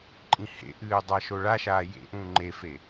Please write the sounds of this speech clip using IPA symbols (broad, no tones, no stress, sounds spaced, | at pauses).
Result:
ǃʼ ĩ h ḛ ʔ ɨː dˤ a ʃ o ɭ a ʃ aː j ḛ ʔ ũː ŋ͡ǃ e f e